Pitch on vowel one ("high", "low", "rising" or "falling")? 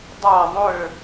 falling